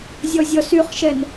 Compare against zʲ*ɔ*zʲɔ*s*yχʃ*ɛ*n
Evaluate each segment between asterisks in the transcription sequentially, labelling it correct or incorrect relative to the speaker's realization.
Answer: correct, correct, correct

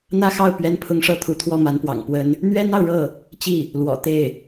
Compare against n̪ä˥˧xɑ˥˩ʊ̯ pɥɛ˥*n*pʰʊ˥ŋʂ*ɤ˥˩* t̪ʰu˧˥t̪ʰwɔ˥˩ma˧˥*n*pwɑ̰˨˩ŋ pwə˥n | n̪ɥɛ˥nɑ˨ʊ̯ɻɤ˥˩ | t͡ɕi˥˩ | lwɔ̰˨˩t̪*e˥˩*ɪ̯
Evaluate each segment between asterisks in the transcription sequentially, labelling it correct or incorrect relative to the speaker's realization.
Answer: correct, correct, correct, correct

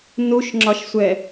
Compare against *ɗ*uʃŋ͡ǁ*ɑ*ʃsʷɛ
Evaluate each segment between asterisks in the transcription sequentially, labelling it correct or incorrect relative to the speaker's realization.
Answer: incorrect, incorrect

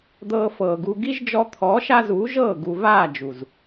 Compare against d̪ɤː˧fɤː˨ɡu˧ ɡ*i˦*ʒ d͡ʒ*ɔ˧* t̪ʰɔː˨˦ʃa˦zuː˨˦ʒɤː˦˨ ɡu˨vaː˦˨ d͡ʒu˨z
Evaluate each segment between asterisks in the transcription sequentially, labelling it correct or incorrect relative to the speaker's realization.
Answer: correct, correct

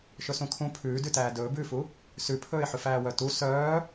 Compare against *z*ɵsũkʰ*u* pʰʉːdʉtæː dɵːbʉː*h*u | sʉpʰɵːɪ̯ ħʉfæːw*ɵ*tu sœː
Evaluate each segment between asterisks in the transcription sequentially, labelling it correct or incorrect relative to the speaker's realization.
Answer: incorrect, incorrect, incorrect, incorrect

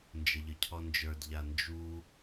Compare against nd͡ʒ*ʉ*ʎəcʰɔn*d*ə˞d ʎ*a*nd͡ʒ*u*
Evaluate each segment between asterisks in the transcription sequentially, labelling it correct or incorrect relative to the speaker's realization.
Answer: incorrect, incorrect, correct, correct

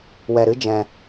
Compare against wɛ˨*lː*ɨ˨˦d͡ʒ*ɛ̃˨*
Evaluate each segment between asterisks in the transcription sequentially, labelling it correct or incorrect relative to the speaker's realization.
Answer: incorrect, correct

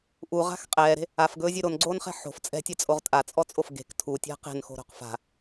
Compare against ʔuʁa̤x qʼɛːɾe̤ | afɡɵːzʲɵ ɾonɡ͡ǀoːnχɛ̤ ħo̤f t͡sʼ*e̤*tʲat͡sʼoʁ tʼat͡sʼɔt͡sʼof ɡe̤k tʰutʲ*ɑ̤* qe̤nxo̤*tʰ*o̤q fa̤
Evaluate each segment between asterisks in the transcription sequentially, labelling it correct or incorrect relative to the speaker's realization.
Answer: incorrect, incorrect, incorrect

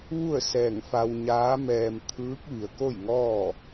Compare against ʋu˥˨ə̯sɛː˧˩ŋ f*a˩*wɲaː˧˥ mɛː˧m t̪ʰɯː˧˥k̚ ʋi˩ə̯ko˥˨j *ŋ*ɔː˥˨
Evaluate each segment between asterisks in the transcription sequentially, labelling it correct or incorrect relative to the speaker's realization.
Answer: incorrect, correct

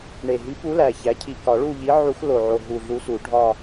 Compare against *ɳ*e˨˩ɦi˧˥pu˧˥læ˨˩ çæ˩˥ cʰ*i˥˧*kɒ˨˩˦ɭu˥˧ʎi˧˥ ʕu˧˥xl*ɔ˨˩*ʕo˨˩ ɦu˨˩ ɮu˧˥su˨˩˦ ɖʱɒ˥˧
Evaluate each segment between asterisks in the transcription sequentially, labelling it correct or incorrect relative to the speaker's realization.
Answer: correct, incorrect, incorrect

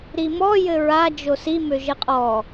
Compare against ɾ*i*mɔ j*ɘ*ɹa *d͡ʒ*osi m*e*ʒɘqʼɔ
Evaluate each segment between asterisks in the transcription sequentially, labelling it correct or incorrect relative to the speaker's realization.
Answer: correct, correct, correct, incorrect

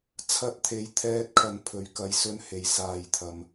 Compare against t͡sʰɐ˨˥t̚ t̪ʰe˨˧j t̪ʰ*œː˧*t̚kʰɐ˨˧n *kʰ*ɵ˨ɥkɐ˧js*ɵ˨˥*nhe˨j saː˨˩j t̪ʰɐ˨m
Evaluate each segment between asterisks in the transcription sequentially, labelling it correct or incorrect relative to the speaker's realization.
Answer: incorrect, incorrect, incorrect

